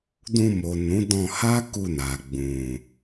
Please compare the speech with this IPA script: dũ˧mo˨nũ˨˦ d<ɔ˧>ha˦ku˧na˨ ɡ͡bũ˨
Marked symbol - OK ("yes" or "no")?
no